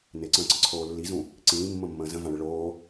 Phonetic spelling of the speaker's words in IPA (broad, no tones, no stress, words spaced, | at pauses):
nɪǀə̃ːǀəǀʰoː lːizũ | ǀĩːmːə̃mːə̃ː zə̃vãɭɪ ɭoː